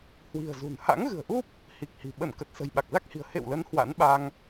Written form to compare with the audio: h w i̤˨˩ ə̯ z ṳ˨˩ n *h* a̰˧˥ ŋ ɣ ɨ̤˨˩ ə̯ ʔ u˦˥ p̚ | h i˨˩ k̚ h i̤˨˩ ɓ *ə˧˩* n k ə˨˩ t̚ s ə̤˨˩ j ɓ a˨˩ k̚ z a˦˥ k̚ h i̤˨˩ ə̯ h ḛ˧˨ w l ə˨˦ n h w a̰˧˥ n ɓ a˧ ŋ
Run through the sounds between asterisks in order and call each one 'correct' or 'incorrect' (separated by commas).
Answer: correct, correct